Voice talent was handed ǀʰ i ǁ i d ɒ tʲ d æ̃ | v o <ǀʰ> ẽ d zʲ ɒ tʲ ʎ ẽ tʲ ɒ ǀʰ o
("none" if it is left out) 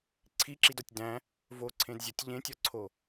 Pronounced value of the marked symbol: ǀʰ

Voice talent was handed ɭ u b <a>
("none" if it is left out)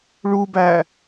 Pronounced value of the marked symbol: æ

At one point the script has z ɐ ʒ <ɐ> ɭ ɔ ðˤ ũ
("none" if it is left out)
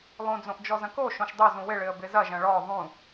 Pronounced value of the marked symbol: ɐ̃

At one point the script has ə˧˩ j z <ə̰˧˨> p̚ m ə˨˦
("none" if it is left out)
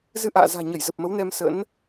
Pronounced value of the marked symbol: ə˨˩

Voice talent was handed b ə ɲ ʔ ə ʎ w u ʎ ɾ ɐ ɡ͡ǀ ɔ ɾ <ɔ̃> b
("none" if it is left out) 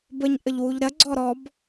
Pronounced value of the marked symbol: ɔ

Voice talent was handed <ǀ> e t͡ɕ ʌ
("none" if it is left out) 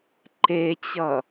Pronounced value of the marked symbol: ǃ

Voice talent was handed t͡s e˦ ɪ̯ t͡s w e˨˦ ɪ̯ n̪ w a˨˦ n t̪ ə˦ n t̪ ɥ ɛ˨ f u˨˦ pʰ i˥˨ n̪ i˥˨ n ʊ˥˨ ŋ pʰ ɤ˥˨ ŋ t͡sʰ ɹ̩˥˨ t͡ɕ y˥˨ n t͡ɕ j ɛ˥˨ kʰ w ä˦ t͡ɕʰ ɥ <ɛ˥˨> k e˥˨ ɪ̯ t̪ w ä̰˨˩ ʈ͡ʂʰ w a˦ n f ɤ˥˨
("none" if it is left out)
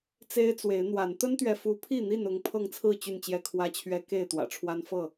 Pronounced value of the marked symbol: ɛ˦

